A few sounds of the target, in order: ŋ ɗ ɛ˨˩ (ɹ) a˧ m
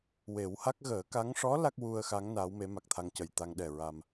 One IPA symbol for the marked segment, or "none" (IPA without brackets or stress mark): ɹ